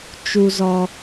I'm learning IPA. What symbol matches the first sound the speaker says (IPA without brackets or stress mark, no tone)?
t͡ʃ